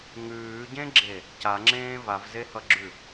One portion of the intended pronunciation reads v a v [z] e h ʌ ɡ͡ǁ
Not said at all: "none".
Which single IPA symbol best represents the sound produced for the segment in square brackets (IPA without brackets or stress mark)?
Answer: z